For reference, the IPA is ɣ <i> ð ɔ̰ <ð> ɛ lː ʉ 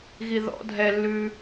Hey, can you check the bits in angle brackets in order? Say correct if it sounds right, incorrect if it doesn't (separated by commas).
correct, incorrect